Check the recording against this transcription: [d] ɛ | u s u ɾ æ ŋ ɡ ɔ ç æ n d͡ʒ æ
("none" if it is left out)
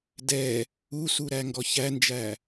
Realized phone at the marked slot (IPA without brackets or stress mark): d